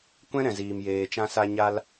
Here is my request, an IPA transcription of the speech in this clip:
kʷɛ̃˦ɾɛ̃˨ziː˨m jeː˨t͡ʃã˧sa˧ ɲa˧l

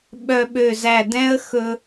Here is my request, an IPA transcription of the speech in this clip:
ɓœ˧ɓø˧˩zæ˧˩dɛ̃˥ə̯ xɵ˧

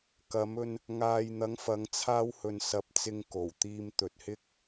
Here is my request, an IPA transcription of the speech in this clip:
kɐ˨˧mɵ˧n | ŋaː˨jn̪ɐ˨˧ŋfɐ˨˧ŋ t͡sʰaː˧whɵ˨n sɐ˨p̚ t͡sɪ˧ŋko˨˩wt̪iː˧m t̪ɵ˨t̚hɪ˥k̚

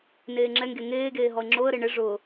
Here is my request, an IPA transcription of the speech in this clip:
neːŋ͡ǁɛŋɡe ŋeːɡeː ɦɔɪ̯ŋ͡ǁoə̯ɾe ɳɪ ʐʊ

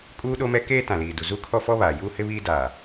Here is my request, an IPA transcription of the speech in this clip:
kʼuː˦ɗo˦mɛ˦ keː˦tã˨liː˨ du˨zu˦kʰɔ˦fɔ˦ βaː˨juː˦hɪ˦βiː˦ daː˨

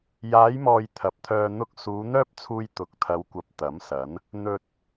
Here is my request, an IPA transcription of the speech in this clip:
jaː˨˧jmɔː˨j t̪ʰɐ˨˥p̚t̪ʰœː˧ n̪ʊ˧k̚ suː˨˧n̪œː˥p̚t͡sʰuː˧j t̪ʊ˨˥k̚t̪ʰɐ˨˧wkʷɐ˨p̚ t̪ɐ˨˥msɐ˨˥n | n̪ɵ˨t̚

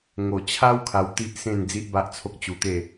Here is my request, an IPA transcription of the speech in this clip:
ŋo˨˩t͡ɕʰa˦w kʰa˧wt̪i˦ʔsẽ˥˧n d͡zi˦ʔba˦ʔt͡sʰo˦k̚ t͡ɕu˧t̪e˥˧

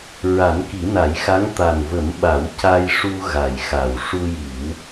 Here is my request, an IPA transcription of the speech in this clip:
ɹa˨˩˦nki˨˩˦na˨˩˦jxa˧˥ŋ t̪a˨˩nvə˨˩˦m ɓa˨˩˦w ca˧j ʂu˧ ɣa˨˩jxa˨˩w ʂu˧ji˨˩˦w

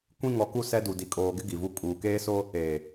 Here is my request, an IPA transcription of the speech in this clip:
kʷĩ˦ ŋɔ˨˦ku˦ sɛ˦ du˨ di˨kʼoː˨ɡɪ˦ ɡi˨vu˦ kʼuː˨ keː˦so˦ | eː˨

